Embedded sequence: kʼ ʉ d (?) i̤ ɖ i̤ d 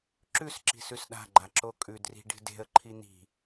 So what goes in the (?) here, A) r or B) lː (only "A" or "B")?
A